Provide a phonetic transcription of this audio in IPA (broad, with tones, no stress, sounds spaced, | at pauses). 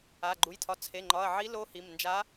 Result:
a˩˧˩ ɡ͡ǃ u˩˧˩ j tʰ ɒ˩˧˩ t͡sʰ e˩˧˩ ŋ͡ǃ ɒ˩˧˩ ɐ̯ ʕ i˧˥ l o˧˥ h i˩˧˩ m n d͡ʒ a˧˥